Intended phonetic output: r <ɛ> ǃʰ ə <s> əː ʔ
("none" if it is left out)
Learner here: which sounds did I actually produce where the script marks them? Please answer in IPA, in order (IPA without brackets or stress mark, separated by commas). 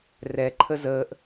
ɛ, z